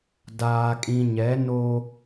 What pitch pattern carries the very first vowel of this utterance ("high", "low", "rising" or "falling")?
low